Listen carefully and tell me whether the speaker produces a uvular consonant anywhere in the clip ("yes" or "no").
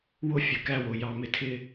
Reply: no